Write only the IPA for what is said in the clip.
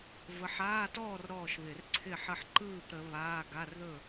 v ə˨˦ ħ aː˧˥˧ t ɔː˥˨ r ɾ ɔː˥˨ ʃ β ɪ˧˩˧ r ǀʰ ɪ˥˨ ħ ə˥˨ ħ ǃ ɯː˥˨ p ɾ ə˨˦ β aː˧˥˧ ɡ a˧˥˧ r ð ɵ˥˨

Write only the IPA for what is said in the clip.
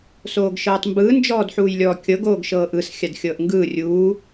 s oː ɡ ʃ ɤː tˤ m b ɯː n d͡ʒ ɔː d ħ uː j lʲ ɔː kʲ ɤ ɡ oː ɡ ʃ ɤː ʔ ɯ s xʲ a d xʲ ɤː ʔ ŋ ɡ ɯː rʲ uː

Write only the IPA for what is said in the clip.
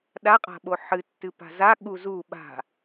ɗ a qʼ a̤ ɓ o ħ ɨ tː ɨ p a̤ z a ɠ u z u ɓ a̤

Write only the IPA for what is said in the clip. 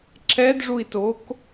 ǁ ɛ d ʐ u i̯ t o k

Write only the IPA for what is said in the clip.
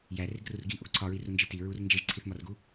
j æ r e ɡ r u r ɡ i ʔ o ɡ ǀʰ ɒ ɹ i r u n d͡ʒ i t i ɹ u r n d͡ʒ e ʒ ǀʰ i θ m ɒ r ɡ u

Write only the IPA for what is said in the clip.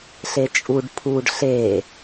ɬ e t͡ʃʼ u ɖ pʰ u ɖ ɬ e

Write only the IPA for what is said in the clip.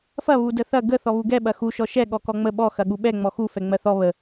f ɐ β u d ə θ ɐ ɡ ə θ ɔ β u ɡ ɛ ɓ ɐ x u ʃ ɔ ʃ ɛ ɠ ɔ k ɔ ŋ͡m ə ɓ ɔ x ɐ ɠ u ɓ ɛ ŋ͡m ɔ x u f ɛ ŋ͡m ɜ θ ɔ β ə

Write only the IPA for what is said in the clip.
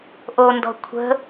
ʔ o n d ɔ̤ kʷʰ ə̤

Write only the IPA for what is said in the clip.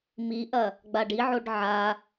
m i ʔ ɐ | ɡ͡b a ɖ i ʕ o ɖ ʕ a

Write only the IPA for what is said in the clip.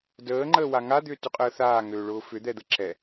d əː ŋ͡ǃ əː w a ŋ a d̪ ʏː t ʏ qʼ əː θ aː ŋ øː ɭ ʊː f ʏ d̪ ɛ d̪ ə ǁ ɛ

